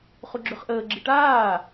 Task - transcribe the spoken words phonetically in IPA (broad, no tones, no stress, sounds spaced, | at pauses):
χ u ɡ͡ǁ ø χ ʔ əː ɡ͡ǁ i ʈ aː